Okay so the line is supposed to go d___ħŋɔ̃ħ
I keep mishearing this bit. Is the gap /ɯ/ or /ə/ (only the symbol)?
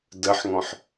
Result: ə